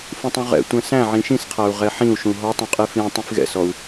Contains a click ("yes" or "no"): no